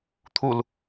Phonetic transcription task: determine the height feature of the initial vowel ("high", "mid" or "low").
high